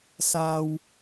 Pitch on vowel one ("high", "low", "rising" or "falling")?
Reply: low